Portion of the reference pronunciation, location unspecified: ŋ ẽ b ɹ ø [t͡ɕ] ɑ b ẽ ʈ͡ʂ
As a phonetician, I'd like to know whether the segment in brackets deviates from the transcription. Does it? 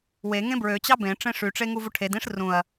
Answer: no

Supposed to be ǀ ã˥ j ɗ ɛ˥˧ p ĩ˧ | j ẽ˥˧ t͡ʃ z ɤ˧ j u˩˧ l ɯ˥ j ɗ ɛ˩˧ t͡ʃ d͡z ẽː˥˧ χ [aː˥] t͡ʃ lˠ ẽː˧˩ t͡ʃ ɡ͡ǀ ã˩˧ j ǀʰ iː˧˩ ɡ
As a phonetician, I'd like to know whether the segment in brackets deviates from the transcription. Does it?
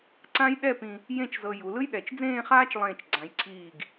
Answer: no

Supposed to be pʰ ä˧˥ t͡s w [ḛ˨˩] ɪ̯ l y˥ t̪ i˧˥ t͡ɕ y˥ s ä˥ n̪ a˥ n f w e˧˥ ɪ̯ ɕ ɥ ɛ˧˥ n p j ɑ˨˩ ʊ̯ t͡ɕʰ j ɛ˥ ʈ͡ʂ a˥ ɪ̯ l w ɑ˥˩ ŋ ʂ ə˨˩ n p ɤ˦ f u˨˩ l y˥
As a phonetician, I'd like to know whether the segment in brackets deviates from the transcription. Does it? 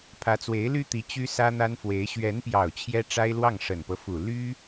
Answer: yes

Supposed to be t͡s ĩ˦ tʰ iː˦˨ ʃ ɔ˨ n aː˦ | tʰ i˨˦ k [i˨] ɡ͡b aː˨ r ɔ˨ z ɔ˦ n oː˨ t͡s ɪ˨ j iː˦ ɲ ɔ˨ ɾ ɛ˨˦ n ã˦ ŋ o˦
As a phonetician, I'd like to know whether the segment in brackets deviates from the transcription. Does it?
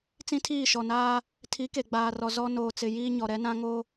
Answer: yes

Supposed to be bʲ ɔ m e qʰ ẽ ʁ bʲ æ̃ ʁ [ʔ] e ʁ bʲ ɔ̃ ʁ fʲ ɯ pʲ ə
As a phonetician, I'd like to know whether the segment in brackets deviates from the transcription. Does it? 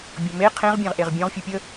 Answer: no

